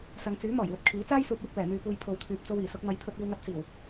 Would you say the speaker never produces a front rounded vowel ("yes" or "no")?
no